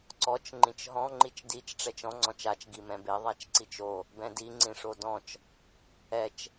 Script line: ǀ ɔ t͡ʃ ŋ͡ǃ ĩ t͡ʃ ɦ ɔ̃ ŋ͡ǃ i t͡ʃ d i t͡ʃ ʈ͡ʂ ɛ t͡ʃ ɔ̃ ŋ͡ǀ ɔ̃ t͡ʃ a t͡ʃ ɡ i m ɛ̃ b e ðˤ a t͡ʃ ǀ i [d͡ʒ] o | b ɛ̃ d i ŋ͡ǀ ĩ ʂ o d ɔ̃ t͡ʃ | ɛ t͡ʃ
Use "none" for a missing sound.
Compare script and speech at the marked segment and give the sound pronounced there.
t͡ʃ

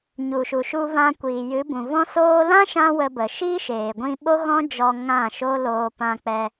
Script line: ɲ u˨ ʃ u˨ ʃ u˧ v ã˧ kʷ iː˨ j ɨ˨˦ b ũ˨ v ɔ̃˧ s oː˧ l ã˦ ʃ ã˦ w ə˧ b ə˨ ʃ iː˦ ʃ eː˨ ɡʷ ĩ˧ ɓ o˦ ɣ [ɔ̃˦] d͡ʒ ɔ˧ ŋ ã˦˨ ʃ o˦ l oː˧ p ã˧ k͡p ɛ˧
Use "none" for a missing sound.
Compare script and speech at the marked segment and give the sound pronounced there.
ɔ̃˦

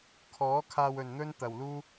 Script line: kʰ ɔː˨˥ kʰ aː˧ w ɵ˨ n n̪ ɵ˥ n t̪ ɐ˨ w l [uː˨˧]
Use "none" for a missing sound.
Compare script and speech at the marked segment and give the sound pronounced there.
uː˥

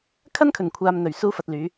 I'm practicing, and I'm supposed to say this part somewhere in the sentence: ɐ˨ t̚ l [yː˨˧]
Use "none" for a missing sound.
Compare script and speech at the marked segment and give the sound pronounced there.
yː˨˧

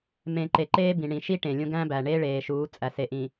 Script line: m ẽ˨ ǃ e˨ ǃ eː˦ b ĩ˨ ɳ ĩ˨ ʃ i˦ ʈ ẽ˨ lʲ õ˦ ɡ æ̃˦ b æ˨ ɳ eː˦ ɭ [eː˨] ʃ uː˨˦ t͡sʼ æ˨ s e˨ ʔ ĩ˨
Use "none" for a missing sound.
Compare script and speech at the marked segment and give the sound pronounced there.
eː˨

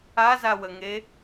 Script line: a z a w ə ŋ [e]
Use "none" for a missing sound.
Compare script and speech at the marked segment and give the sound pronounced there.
e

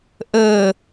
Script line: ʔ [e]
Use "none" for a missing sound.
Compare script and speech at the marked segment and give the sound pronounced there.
ɘ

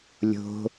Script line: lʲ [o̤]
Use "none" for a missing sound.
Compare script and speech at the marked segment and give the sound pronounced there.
o̤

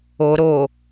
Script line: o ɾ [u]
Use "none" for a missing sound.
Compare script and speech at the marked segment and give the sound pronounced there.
o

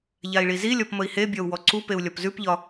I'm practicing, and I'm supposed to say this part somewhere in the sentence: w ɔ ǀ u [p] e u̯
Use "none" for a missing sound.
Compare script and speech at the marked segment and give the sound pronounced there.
p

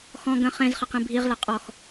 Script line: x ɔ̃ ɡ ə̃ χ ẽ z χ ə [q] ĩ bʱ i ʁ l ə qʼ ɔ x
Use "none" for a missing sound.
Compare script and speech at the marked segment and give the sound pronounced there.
q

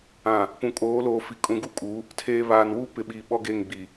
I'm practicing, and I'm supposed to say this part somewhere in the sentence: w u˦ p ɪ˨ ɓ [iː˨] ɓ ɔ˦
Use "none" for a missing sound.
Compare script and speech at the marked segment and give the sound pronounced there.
iː˨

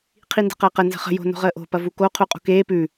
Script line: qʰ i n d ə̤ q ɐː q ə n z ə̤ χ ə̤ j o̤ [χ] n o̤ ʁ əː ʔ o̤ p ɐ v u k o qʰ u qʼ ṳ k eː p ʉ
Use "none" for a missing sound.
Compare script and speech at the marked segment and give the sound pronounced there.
none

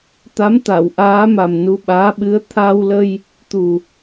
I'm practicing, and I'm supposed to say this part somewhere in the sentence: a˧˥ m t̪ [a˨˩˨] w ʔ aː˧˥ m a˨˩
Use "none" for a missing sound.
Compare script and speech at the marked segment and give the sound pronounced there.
a˨˩˨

